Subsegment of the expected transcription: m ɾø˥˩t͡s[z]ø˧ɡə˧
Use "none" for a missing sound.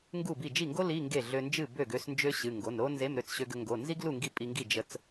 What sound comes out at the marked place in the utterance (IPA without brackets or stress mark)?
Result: ɕ